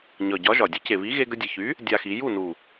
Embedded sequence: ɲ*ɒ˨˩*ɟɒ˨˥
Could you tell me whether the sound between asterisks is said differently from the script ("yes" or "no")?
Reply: no